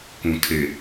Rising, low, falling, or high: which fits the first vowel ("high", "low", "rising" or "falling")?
low